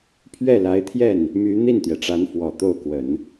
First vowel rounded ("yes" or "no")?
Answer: no